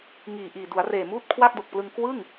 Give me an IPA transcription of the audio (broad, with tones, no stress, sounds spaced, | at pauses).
ŋ iː˨˩ ʔ iː˨˩ d u˩˦ a̯ r eː˨˩ m uː˥˩ t̚ kʰ w a˥˩ k̚ d o˨˩ k̚ p l ɯ˧ ŋ k w ɯ˥˩ ŋ